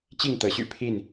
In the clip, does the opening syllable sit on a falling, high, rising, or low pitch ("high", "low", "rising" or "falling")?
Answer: falling